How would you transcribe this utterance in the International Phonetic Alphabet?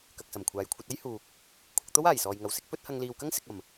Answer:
k ɐ˨ k̚ s ɐ˨˩ m kʷʰ aː˨ j kʷʰ ɐ˧ t̚ ɐ˥ j h uː˨ k̚ | kʷʰ ɐ˧ k̚ t̪ o˥ w aː˨˩ j s ɔː˨ j ŋ ɐ˨ w s ɪ˥ k̚ p ɵ˥ t̚ h ɐ˧ ŋ l iː˨ w k ɐ˥ ŋ s ɪ˨ k̚ ɐ˨˩ m

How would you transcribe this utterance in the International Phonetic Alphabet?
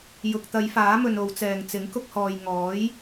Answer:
j ʊ˨ k̚ t̪ ɐ˨˧ j f aː˨˥ m ɵ˨ n o˨˧ w t͡s ɛː˨ ŋ t͡s ɪ˨˥ ŋ k ʊ˧ k̚ h ɔː˨ j ŋ ɔː˨˥ j

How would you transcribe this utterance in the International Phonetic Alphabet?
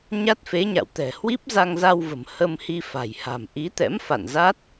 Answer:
ɲ a˦˥ t̚ f e˨˦ ɲ a̰˧˨ w t̪ ɛ̤˨˩ h w i˦˥ p̚ z a˧ ŋ z a˧ w v ə̤˨˩ m h ə˧ m h i˧ f a̤˨˩ j h a̤˨˩ m ʔ i˨˦ t̪ ɛ̰˧˥ m f a̰˧˨ n z a˦˥ t̚

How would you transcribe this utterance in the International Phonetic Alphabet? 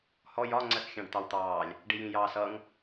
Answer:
h ɔ j ɒ ŋ͡ǀ ɜ s xʲ ɑ̃ ɖ t̪ ɑ w t̪ ɑː lʲ | ɖ i j ĩ j ɑː s ʌ ŋ

